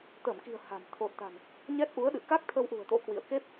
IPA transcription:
t̪ əː˧˩ m k i̤˨˩ ə̯ h a̤˨˩ m t̪ʰ o˨˩ t̚ t̪ a̤˨˩ n | ɲ ɛ˦˥ t̚ ʔ u˨˦ ə̯ ɗ ɨ̰˧˨ k a˦˥ k̚ t̪ʰ ə˧ w ʔ ṳ˨˩ ə̯ t̪ o̰˧˥ k w ḭ˧˨ ə̯ k e˦˥ p̚

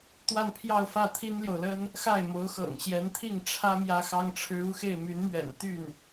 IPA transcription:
t̪ w a˥˧ n pʰ j ɑ˥˧ ʊ̯ f ä˥˩ t̪ʰ i˥ n l j o˨ ʊ̯ l ə˥ n | x a˥˩ ɪ̯ m o˧˥ ʊ̯ x ɤ̰˨˩ ŋ ɕ j ɛ˧˥ n t̪ʰ i˥˩ ŋ ʈ͡ʂʰ ä˥ m j ä˥ x ɑ˥ ŋ ʈ͡ʂʰ ɻ̩˥ u˥ x e˥˩ ɪ̯ m y˧˥ n m ɥ ɛ̰˨˩ n t̪ y˥˩ n

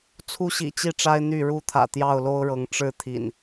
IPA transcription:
t͡sʰ u˦ ɕ ḭ˨˩ t͡ɕ i˥˨ ʈ͡ʂ a˦ ɪ̯ n̪ y˥˨ ɻ u˦ t̪ʰ ä̰˨˩ t̪ j ɑ˥˨ ʊ̯ l o˦ ʊ̯ ɻ ɤ˨˦ ŋ ʈ͡ʂ ɻ̩˥˨ t̪ʰ ḭ˨˩ n

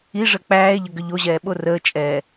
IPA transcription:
i ʐ ə k͡p æː e̯ ʎ ə ɡ ʏ ʎ o ʑ ɛː ɓ o r əː t͡ʃʼ ɛː

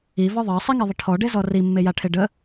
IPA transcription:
i v ɔ ðˤ ɑ sˤ i ŋ e ðˤ ə ʈʰ ɔ ɖ e z ɔ r i mː e j a ʈʰ e ɖ ə

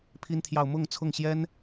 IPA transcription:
pʰ i˥ n t̪ʰ j ɑ˥˧ ʊ̯ m ʊ˥˧ ŋ t͡sʰ ʊ˥˩ ŋ ɕ j ɛ˥ n

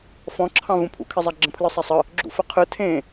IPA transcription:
f ɔ̃ ǁʰ ɑ̃ v ũ pʰ ṵ kʰ e zˤ a ɡ͡ǁ ə̃ pʰ l ɯ sˤ a sˤ ə | ɡ͡ǁ ṵ f ə qʰ ɯ tʰ ẽ

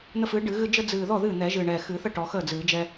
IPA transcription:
n̪ ə˦ f ɨː˨˥ ɖ ɨ˨˩˦ ɣ ɨ˦ d͡ʒ ə˦ d͡z ɨː˨˩ ð ɔ˥˩ ð ɨː˥˩ n̪ ɛ˨˩˦ ʒ ɨː˨˩ ɳ ɛː˨˩ x ɨː˨˩˦ θ ə˥˩ ʈ ɔ˨˩˦ x əː˥˩ d͡z ɨː˨˩˦ d͡ʒ ɛ˦

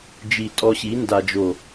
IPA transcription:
d͡ʒ i˨ tʼ ɔ˧ ɕ i˨˦ n d a˨ d͡ʒ o˨

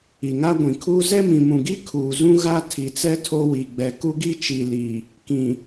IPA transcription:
i˨ ŋ a˦ ɡʷ ĩ˨ kʰ uː˦ z ɛ˦ m ĩ˨ m ũ˨ ɡ i˦ kʰ uː˨ z ũ˦ ɣ a˦ tʰ i˨ t͡s ɛ˦ tʰ o˦ w i˨ ɡ͡b ɛ˨ k u˦ ɡ i˦ t͡ʃ i˨ l i˨ | k ĩ˨

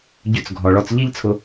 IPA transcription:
ɟ ʏ˧ t͡s ɡʱ ɔ˨ ɭ ɔ˧ t͡s ʎ i˦ ʎ t͡sʰ ʊ˧

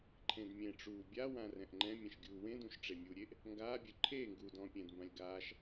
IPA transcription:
ǃʰ ẽ d mʲ ẽ ʈ͡ʂ uː bʲ a w ã r ɛ̃ ʔ ŋ͡ǃ ɛ̃ mʲ ɛ̃ ʃ ɡʲ uː w ẽ d ũ ʃ ʈ͡ʂ e mʲ u ɾʲ e ʔ | ŋ ɡ aː bʲ ɵ ǃʰ eː ŋ ɡ uː d ɔ̃ː pʲ ɛ̃ d m b ã lʲ ɡ aː ʃ

